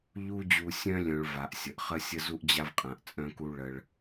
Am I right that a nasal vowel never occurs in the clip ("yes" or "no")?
no